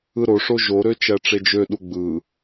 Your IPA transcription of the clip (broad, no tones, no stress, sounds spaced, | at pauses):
ɯ ɾ o ʂ o ʒ o ɾ ø t͡ʃ æ ʈ͡ʂ e d͡ʒ ø ɗ u ɡ͡b ɯ